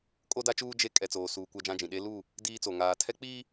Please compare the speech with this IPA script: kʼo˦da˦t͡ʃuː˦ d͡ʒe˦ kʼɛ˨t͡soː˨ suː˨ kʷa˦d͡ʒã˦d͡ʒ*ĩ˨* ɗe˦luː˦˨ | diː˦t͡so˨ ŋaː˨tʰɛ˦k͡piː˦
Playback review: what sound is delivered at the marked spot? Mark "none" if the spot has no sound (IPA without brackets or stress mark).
ĩ˨